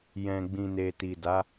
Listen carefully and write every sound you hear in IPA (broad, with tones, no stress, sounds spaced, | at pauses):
j ɛ̃˨ ɡ͡b ĩ˨ n e˨ t i˨ d a˨˦